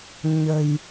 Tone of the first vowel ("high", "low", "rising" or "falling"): low